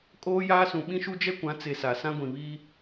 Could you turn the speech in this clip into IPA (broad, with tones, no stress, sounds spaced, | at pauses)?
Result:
kʼ oː˦ j aː˦ s ũ˨ ɓ ĩ˦ ʃ u˦ d͡ʒ ɛ˦ kʷ ã˨˦ t͡s e˨ s a˨ s ã˦ ɡʷ ĩ˨ β i˦